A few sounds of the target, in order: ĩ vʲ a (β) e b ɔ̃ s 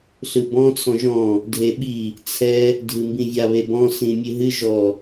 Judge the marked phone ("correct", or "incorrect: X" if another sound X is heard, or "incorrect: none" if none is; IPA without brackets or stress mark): correct